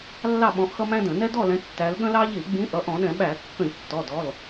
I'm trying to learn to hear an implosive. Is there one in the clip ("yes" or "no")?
yes